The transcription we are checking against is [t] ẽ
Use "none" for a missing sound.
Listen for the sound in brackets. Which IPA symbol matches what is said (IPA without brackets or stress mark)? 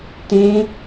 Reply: t